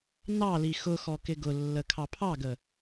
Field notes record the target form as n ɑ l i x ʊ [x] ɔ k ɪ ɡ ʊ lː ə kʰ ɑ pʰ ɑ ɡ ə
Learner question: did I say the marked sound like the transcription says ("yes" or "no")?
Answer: yes